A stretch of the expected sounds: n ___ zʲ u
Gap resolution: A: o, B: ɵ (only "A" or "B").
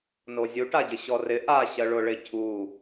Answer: A